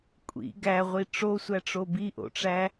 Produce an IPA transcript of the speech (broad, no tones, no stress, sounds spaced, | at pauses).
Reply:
kʷʼ ḭ ɡ æ ʁʷ i ʈ͡ʂ o sʷ æ ʈ͡ʂ o b i ʔ o̰ ʈ͡ʂ æ